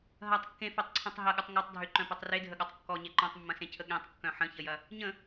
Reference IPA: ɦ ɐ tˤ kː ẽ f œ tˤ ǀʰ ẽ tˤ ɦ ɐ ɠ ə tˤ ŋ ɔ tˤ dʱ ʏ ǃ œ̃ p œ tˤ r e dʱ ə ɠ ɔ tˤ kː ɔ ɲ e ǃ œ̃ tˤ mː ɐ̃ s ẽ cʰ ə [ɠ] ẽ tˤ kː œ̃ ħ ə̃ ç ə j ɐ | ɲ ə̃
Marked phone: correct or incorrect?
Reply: correct